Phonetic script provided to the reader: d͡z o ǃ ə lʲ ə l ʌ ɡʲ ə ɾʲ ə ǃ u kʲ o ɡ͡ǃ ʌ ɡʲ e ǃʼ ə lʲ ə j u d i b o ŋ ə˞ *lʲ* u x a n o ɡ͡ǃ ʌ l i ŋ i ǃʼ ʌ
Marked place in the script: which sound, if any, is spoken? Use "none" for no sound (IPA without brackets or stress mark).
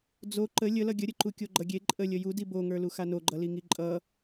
l